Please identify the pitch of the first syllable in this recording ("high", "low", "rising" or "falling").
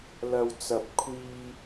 low